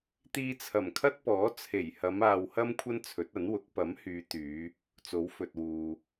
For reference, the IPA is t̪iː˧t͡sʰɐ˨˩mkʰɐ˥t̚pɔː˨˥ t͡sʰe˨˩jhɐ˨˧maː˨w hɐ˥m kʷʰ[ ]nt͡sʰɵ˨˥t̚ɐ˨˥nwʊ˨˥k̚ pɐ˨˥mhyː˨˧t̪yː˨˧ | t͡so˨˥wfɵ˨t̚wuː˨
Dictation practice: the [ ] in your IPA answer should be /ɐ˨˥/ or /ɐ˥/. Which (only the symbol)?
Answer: ɐ˥